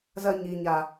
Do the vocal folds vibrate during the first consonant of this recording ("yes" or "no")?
yes